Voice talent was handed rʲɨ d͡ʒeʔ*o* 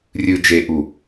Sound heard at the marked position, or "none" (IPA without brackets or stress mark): u